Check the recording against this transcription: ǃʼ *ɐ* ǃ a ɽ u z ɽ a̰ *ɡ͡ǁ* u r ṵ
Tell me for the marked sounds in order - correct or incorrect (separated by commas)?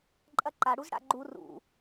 correct, incorrect